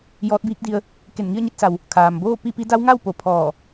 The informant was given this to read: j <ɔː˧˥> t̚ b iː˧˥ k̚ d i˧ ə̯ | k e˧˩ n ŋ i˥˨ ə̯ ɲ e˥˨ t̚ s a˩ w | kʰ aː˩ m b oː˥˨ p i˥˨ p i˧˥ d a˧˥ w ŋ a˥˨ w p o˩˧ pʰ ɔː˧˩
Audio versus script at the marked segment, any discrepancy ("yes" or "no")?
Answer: no